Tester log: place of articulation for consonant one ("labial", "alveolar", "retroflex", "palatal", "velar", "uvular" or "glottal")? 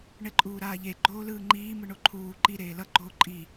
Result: retroflex